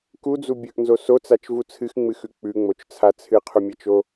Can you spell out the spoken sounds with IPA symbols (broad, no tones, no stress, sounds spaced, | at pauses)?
k u d͡z u bʲ ɵ ʔ n z o s o t͡s a t͡ʃ v u t͡sʰ ɨ x ŋ͡m ɨ x ʉ k͡p ʉ ŋ͡m o t͡ʃ t͡sʰ a t͡sʰ ɨ qʰ u mʲ ɐ t͡ʃ o